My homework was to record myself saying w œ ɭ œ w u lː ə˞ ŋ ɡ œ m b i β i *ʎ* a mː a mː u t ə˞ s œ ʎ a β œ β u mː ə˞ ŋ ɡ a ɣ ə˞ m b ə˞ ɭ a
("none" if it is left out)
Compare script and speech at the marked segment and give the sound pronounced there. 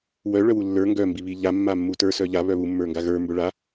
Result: ʎ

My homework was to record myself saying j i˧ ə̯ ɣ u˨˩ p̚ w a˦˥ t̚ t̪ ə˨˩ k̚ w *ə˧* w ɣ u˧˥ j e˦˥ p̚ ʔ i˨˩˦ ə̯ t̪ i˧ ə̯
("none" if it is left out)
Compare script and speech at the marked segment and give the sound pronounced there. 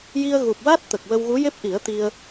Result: ə˧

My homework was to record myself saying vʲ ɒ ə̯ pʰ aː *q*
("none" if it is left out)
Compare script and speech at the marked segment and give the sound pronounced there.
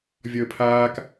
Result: k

